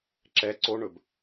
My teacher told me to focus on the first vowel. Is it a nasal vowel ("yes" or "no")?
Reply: no